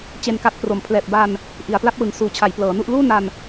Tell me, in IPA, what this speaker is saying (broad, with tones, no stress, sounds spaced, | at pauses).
t͡ɕ e˧ n k a˦˥ t̚ p r o˨˩ m pʰ l ɛː˨˩ p̚ b a˧ n | ʔ i˩˦ a̯ p l a˦˥ p̚ w ɯ˨˩ ŋ s uː˨˩ t͡ɕʰ a˩˦ j p l ɤː˩˦ n u˥˩ ʔ l uː˥˩ n a˧ n